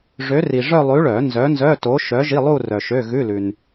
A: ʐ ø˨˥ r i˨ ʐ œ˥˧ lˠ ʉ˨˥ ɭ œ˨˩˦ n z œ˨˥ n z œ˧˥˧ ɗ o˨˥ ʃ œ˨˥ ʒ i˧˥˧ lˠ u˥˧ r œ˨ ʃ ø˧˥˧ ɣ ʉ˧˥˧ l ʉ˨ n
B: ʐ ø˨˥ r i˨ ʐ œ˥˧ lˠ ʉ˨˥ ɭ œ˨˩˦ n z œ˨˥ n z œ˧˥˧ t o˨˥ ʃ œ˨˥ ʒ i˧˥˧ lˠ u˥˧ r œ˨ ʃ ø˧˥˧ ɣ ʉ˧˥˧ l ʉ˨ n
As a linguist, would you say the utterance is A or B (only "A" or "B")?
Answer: B